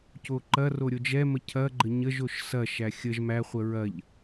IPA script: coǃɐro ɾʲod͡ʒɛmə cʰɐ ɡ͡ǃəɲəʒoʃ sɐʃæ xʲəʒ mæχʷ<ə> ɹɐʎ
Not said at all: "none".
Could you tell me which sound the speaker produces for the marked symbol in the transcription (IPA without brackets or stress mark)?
ə